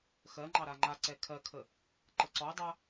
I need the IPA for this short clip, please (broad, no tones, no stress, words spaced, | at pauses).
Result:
xɜŋ͡ǃɑ ɾaŋ͡ǃaǀɛ kʰɜkʰə | ǃəǀɔdˤa